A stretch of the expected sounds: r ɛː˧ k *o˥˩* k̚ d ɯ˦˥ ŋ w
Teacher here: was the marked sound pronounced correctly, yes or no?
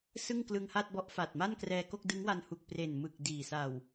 yes